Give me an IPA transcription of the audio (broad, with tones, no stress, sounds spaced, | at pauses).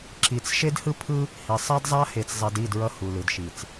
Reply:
ǁ i˨ t͡s ʃ e˦ d h ɯ˦ pʰ ɯ˦ | h i˨ sˤ a˦ d zˤ a˦ h e˨ t͡s zˤ ɛ˨ d i˦˨ d ɹ ʌ˦ h u˨ l ɯ˨ d ʃ i˨ t͡s